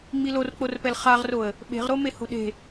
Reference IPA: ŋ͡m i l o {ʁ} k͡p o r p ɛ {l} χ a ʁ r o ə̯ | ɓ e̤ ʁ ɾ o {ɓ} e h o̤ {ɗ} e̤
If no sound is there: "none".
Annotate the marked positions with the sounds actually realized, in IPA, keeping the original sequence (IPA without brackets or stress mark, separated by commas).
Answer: r, l, m, ɗ